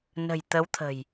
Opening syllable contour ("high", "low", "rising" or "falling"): low